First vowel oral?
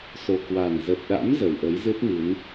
yes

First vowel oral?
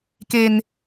yes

